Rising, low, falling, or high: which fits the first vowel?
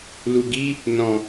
low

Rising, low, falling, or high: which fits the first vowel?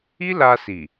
high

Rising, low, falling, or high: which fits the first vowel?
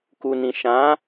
low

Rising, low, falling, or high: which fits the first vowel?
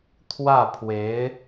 falling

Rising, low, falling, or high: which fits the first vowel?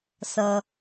low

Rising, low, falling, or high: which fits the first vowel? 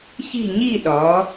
falling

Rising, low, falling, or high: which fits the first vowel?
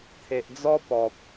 low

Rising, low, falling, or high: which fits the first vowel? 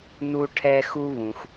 high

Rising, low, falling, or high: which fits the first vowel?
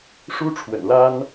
high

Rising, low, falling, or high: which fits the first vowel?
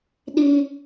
high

